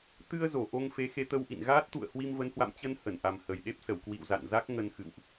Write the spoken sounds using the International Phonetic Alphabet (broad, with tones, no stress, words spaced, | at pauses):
t̪ɨ˧ə̯zo˧˩ ʔo˧ŋfe˨˦xe˧ t̪ə˧wʔḭ˧˨n ɣaː˦˥t̚t̪ṵ˧˨ə̯ hwi˧mvə˨˦nhwa̰˧˨m t͡ɕə˧n hə˧˩nʔa˨˩m hə˨˩jɗe˦˥p̚sə˧˩w kwḭ˧˨w za̰˧˨nza˦˥k̚ ŋə˧nxɨ̰˧˨wʔ